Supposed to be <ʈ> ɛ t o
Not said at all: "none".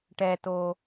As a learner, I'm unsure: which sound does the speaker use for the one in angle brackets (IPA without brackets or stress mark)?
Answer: ʈ